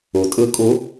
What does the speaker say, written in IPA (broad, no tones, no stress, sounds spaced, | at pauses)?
u tʼ ɯ kʼ u